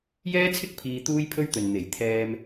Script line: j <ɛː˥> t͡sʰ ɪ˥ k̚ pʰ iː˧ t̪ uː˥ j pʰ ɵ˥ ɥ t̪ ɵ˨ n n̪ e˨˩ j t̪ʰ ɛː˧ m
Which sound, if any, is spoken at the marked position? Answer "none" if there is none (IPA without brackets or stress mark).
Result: ɛː˥